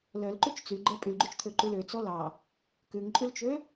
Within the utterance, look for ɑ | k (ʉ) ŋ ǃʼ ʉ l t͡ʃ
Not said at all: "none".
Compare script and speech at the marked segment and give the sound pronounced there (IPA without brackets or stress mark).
ʉ